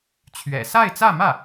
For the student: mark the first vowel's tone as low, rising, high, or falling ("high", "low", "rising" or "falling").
low